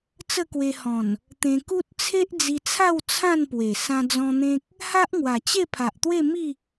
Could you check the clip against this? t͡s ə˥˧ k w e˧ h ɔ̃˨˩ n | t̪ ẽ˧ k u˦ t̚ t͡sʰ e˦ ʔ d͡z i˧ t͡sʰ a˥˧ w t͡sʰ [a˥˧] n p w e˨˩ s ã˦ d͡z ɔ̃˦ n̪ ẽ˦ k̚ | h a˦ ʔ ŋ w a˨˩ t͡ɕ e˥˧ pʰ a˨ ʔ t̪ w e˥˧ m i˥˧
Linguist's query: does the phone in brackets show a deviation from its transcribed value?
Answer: yes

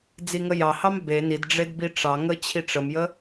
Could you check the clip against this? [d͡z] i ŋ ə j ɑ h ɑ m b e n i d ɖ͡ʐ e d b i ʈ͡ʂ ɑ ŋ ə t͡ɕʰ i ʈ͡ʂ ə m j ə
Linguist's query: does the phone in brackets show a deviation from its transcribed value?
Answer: no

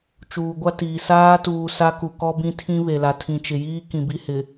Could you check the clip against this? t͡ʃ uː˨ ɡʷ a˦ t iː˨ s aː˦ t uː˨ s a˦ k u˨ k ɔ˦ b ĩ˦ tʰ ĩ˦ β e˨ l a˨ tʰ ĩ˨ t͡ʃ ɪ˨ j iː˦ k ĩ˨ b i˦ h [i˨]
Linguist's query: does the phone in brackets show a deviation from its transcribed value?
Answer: yes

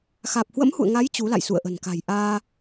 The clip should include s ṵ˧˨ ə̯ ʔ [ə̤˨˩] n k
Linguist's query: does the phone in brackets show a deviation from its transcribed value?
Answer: no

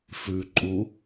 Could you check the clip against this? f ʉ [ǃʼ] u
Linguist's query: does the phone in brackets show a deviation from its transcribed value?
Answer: no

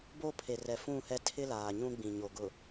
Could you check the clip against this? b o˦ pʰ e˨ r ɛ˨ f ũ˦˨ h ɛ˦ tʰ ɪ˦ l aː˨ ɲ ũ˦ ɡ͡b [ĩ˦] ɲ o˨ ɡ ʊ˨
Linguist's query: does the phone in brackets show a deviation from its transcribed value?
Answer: yes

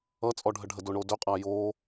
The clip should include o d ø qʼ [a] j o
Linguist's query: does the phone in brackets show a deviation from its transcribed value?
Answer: no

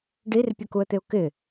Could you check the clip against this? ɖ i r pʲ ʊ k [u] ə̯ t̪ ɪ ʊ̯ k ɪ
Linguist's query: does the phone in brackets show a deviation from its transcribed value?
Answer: no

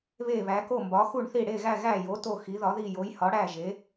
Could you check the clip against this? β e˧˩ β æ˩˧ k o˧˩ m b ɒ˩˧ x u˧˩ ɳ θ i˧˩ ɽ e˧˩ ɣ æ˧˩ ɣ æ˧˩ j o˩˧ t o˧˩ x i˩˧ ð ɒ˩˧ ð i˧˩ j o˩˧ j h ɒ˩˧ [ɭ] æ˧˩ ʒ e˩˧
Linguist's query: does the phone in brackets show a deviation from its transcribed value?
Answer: yes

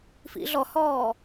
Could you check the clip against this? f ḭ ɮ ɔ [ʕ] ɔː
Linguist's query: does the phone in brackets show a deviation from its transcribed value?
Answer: yes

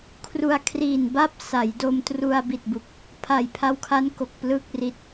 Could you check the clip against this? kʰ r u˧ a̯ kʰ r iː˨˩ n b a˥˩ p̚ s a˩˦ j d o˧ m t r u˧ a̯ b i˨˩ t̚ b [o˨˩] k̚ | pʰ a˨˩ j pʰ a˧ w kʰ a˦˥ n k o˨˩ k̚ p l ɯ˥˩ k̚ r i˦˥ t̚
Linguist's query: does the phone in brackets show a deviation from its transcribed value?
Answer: yes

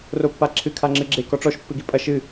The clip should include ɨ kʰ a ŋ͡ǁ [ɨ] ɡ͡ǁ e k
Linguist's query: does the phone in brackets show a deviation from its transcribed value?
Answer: no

